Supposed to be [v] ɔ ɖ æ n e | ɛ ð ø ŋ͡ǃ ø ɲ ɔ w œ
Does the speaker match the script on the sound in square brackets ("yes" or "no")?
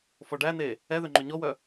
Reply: no